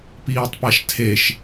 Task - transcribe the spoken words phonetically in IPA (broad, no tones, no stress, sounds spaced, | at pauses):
p iː tˤ p a ʃ tʰ e ʃ